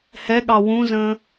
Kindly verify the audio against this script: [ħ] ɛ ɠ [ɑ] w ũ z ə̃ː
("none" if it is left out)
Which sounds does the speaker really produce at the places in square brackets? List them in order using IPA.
h, ɑ

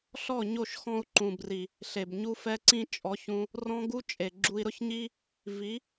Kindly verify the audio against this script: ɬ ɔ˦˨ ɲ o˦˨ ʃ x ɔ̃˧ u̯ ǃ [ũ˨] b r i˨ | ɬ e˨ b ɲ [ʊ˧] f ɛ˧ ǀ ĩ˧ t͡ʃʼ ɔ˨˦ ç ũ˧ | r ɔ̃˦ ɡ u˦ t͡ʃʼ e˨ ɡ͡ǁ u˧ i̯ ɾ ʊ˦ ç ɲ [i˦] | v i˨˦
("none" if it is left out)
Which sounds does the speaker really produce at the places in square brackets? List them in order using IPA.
ũ˨, u˧, i˦

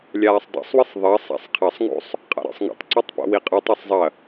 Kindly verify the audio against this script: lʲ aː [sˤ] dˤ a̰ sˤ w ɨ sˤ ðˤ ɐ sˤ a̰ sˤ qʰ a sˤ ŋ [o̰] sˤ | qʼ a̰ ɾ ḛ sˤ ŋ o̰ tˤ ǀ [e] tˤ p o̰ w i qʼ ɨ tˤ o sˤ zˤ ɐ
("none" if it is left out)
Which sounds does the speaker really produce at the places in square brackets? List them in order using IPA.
sˤ, o̰, ɨ

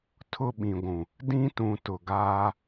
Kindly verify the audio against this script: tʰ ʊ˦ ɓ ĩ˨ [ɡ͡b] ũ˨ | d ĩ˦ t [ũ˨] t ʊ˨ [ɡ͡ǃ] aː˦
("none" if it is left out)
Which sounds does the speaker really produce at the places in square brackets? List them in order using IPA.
ɡʷ, ũ˨, ɡ

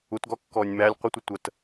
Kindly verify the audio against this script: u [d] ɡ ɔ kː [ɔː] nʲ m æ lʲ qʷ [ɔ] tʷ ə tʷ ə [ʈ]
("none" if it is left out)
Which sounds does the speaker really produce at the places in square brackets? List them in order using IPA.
t, ɔː, ə, t

